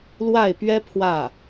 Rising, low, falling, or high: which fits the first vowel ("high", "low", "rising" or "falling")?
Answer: falling